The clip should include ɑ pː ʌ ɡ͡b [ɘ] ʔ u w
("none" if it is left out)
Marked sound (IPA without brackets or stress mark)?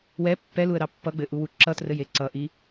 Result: ɘ